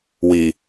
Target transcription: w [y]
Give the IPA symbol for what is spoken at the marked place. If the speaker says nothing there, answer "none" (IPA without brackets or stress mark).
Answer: i